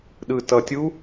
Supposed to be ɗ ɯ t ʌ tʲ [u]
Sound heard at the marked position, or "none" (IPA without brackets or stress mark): u